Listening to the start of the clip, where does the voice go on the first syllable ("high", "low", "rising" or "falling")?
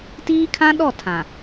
high